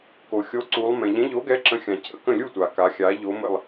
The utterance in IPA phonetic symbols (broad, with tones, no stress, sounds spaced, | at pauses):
k o˩ xʲ o˨˥ ǀ u˩˧ lˠ m ɛ̃˩ ʎ ɛ̃˨˥ ʎ o˨˥ ɡ ɛ˨˥ ǁ ə̃˨˥ xʲ ã˩ cʰ ə̰˥˨ k ə̃˥˨ lʲ u˥˨ tʷ a˩ k a˩˧ xʲ a˩˧ ʎ o˨˥ m ə̰˥˨ lˠ